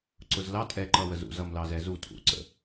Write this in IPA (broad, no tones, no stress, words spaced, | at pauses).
ǀʊzlɑ tʼɛ ǃʌwəzṵz ʌmlɑzɛzu tʰṵǀə̰